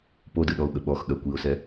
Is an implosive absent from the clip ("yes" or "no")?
no